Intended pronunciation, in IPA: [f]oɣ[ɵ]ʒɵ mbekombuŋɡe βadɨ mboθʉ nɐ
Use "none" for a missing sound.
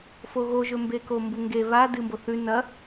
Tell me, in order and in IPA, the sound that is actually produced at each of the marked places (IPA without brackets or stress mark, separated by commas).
f, o